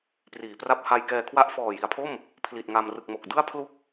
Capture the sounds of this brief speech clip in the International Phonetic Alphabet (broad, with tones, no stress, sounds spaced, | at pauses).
p r iː˩˦ p r a˥˩ p̚ h a˧ j k ɛː˧ kʰ w a˥˩ ʔ f ɔː˨˩ j i˩˦ a̯ pʰ o˥˩ m | pʰ l i˨˩ t̚ ŋ a˧ m r ɯ˨˩ k̚ m o˨˩ k̚ d ɯ˥˩ a̯ pʰ l u˥˩ k̚